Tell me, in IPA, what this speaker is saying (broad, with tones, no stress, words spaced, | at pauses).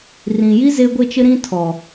rĩ˨ji˦ ze˦ɡʷe˦t͡ʃɪ˦ ɾĩ˦ tʰɔ˨